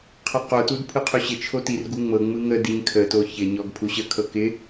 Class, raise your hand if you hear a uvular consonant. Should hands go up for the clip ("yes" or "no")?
yes